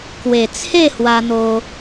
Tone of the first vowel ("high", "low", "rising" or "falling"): low